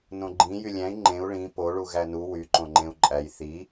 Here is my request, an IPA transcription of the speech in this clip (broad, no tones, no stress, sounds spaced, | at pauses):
n õ ɡ͡ǃ ĩ j y lʲ æ̃ i̯ ŋ͡ǃ ẽ u̯ ɭ ĩ p o ɭ u ɣ æ n u w y ǃ õ ŋ͡ǃ ẽ u̯ ǃʼ æ j θ i